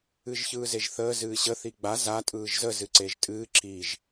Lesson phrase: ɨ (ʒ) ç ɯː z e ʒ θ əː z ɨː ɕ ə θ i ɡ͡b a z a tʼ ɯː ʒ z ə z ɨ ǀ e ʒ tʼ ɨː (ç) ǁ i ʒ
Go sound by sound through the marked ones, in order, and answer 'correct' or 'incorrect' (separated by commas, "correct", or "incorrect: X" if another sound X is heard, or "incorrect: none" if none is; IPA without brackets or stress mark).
correct, incorrect: none